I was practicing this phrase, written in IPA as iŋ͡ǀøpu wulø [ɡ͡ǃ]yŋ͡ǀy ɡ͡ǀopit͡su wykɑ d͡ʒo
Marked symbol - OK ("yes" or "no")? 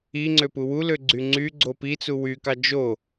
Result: no